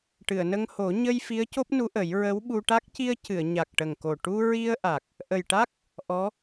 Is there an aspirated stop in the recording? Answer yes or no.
no